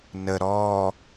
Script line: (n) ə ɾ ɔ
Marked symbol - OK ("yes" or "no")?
yes